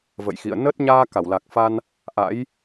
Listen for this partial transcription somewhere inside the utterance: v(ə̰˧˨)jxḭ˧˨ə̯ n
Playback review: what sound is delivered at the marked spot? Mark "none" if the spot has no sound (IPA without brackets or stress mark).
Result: ə̰˧˨